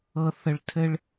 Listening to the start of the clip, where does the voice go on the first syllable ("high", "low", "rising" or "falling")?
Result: low